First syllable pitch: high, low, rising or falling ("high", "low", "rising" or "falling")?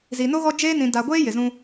low